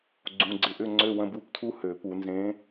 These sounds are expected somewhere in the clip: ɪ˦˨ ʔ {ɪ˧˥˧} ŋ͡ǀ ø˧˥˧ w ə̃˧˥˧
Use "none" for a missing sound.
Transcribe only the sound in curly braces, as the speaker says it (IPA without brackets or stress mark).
ʏ˧˥˧